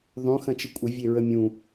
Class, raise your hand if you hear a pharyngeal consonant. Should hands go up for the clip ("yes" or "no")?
no